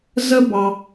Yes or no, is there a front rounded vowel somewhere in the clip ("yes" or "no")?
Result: no